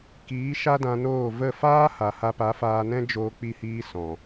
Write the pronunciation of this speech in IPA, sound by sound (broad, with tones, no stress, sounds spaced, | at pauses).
k iː˨˦ ʃ a˦ d ã˧ n oː˦˨ v ə˦˨ f aː˦ h a˨ h a˧ p a˨˦ f aː˧ n ɛ̃˦ d͡ʒ oː˧ k͡p i˧ h iː˧ s ɔ̃˨